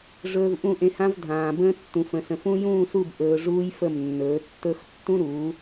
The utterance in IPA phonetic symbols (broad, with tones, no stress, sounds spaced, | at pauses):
ʐ ɵː˧ v ʔ ũ˦˨ ʔ ẽ˧ h ã˦ v dʱ ãː˨ b ə̃ː˧ tː ũ˨ f ə̃˨ s ə̃˨ f ũ˧ j ũː˦˨ s u˦˨ b ʔ ɵː˨ ʐ uː˦ j f ə˦˨ m nː ɵː˨˦ tː ɵ˧ x tː ũ˦ ɾ uː˨˦